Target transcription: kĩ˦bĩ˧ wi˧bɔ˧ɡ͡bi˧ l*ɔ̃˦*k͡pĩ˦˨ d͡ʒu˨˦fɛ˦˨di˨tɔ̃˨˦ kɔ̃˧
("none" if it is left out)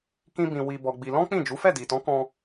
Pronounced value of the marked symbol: ɔ̃˦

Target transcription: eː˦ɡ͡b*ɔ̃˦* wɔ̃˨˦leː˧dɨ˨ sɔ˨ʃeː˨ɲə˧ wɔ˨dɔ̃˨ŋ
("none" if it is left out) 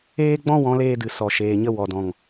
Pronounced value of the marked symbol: ɔ̃˦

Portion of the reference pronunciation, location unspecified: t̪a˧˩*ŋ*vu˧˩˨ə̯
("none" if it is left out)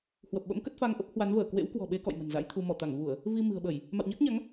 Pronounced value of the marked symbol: ŋ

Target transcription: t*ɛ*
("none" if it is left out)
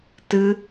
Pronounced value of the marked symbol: ɨ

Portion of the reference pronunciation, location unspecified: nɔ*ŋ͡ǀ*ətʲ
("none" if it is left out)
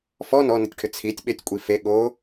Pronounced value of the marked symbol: n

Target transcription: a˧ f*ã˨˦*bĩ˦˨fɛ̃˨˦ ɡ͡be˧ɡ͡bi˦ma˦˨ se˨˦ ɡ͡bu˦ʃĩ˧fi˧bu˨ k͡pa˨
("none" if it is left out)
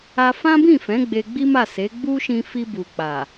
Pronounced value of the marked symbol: ã˦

